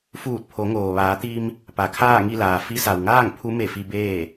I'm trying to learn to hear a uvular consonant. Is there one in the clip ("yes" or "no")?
no